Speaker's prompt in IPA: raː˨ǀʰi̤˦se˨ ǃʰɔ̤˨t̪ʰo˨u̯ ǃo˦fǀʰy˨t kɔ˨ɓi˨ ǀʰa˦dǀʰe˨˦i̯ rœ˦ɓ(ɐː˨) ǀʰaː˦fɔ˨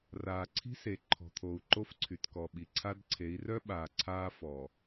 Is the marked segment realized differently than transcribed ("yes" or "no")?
yes